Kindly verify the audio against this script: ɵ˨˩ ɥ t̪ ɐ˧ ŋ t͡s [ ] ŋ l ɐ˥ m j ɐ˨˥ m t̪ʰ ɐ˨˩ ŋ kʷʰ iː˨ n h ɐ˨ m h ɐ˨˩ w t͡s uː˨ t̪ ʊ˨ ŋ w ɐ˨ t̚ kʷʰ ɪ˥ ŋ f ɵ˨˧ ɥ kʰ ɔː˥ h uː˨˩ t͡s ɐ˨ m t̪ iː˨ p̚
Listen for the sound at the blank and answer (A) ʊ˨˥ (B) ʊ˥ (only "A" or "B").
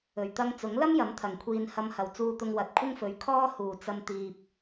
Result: A